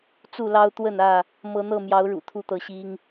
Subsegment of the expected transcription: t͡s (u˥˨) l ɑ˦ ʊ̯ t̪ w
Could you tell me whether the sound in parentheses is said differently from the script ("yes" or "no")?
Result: no